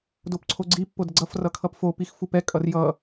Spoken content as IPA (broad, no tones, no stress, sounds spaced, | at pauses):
d o p ǀʰ o ɡ͡ǀ i pː o d ə ɡ͡ǀ ʌ f r ʌ kʰ ʌ p f o p i x f u p ɛ kʼ ʌ r j ʌ